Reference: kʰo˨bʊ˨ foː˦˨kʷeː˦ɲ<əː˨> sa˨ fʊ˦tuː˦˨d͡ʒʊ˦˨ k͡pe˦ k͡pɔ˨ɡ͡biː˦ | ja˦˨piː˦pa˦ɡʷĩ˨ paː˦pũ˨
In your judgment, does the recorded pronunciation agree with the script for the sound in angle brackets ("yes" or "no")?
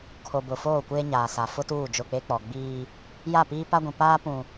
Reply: no